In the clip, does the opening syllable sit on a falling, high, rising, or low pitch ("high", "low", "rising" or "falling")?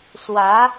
rising